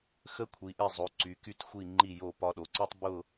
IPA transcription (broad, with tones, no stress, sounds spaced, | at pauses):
x ə˧ kʷʰ i˩˧ ʔ ɛ˧˩ zˤ o˩˧ ǀ y˩˧ k y˧ t xʷ i˧˩ ŋ͡ǃ i˧˩ j o˧˩ p ɒ˧ ɗ o˩˧ ǀ ɔ˥ tˤ b ʊ˥˧